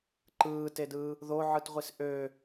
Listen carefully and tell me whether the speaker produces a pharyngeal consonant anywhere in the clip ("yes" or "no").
yes